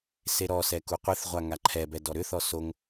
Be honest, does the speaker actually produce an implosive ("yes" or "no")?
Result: no